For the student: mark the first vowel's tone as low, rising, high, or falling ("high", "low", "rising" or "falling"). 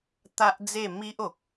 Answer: high